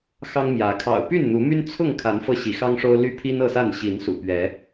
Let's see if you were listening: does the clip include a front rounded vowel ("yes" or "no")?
yes